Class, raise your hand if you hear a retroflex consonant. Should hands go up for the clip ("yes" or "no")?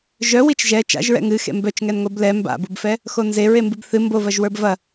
no